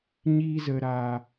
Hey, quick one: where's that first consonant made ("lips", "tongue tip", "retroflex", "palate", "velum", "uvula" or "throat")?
palate